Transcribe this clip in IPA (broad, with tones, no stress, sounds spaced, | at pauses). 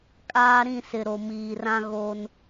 kʼ aː˦ ɾ ĩ˦˨ s ɪ˨ ɾ o˨ m iː˨ r ã˦ ɣ oː˦ n